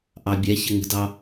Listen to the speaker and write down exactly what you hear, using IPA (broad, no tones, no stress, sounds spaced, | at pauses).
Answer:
ʔ ɑ bʲ ɛ ç ə ŋ ə̤ d ɑ